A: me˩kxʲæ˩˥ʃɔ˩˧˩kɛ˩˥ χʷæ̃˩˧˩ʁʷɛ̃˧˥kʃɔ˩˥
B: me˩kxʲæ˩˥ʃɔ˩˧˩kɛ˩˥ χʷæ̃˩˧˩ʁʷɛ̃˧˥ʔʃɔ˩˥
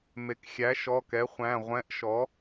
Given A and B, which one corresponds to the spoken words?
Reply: B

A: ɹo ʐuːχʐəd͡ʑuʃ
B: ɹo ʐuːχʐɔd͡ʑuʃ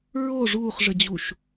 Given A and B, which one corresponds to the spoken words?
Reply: A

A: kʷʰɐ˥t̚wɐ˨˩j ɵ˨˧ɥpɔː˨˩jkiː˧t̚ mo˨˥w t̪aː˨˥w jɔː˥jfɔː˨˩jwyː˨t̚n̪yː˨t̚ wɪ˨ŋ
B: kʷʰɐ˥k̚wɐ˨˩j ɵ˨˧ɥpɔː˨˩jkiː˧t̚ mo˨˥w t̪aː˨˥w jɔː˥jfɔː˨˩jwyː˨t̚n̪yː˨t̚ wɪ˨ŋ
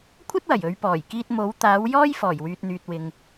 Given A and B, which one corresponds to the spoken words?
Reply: A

